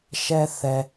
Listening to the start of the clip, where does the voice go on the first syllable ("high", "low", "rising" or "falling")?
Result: high